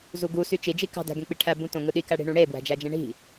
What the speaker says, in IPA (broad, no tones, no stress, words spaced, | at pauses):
zuɡu syt͡ʃi d͡ʒikɑ̤ dæ̤ɡẽk͡piʈʰæ bũtõŋɯɗi kæɽi̤ɳũɽe bwæ̤d͡ʒæd͡ʒẽɳi̤